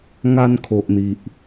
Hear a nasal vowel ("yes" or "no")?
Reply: no